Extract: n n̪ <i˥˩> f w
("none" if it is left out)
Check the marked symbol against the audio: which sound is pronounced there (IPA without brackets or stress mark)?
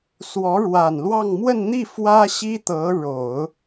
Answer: i˥˩